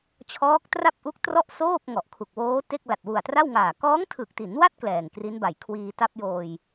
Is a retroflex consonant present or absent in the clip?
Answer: absent